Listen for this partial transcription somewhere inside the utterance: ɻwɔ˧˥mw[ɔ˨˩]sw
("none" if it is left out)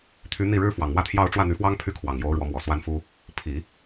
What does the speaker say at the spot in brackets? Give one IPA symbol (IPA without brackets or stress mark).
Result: ɔ˨˩